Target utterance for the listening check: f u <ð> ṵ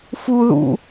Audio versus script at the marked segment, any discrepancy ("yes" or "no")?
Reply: no